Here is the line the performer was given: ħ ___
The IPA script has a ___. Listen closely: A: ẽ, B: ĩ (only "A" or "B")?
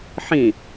B